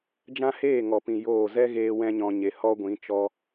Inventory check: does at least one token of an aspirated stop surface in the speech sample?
no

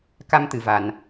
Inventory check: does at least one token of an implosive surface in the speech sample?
no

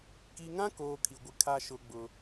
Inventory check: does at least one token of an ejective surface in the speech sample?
no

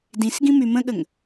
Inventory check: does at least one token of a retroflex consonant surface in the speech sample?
no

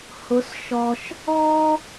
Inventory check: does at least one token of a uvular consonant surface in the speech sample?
no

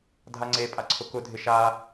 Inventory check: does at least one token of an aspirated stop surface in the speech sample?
yes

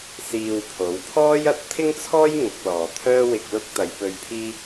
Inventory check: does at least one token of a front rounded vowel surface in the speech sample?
yes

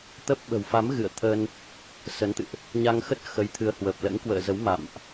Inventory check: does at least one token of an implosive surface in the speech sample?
yes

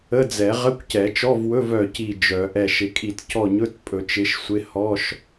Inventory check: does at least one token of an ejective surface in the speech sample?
yes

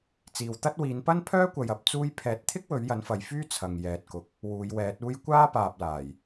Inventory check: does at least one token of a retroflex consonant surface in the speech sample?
no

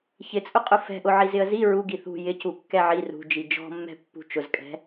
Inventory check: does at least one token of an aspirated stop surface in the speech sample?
no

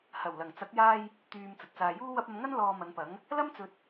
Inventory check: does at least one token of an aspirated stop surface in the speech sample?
no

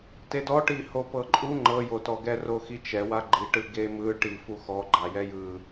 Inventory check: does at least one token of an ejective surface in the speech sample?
yes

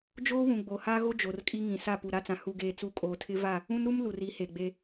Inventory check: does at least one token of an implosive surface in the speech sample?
no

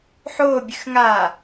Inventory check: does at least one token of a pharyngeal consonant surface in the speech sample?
yes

